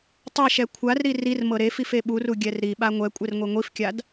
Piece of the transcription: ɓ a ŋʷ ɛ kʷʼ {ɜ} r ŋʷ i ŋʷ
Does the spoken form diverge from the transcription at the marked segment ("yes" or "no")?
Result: yes